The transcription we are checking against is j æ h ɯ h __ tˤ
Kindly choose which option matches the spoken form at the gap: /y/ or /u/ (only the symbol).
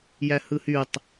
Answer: y